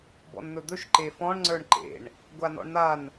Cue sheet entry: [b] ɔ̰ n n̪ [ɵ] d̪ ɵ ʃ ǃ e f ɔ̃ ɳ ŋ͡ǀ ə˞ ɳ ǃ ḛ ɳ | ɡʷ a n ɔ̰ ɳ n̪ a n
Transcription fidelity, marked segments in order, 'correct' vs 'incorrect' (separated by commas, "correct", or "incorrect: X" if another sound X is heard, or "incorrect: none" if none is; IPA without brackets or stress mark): correct, correct